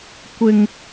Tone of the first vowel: high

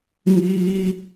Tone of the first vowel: high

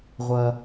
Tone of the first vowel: low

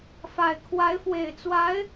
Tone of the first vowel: low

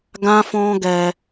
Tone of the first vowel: high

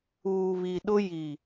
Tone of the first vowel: low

